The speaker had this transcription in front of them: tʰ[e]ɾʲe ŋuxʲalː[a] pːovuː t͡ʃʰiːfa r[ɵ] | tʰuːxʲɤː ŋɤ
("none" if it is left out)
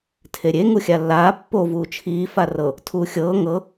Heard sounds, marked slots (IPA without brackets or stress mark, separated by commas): e, aː, ɤ